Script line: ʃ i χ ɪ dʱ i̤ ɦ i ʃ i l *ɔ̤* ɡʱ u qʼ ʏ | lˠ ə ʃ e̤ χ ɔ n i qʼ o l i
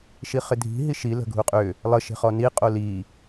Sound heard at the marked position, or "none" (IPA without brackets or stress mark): ə̤